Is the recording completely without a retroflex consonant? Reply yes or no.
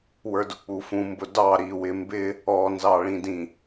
no